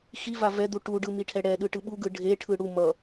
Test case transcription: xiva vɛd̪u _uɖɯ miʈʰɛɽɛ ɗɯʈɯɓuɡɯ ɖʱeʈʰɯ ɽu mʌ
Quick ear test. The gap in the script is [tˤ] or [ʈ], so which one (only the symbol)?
ʈ